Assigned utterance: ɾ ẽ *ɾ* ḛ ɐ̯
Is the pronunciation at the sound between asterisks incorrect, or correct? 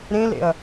incorrect